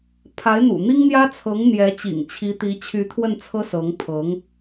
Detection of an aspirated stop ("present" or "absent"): present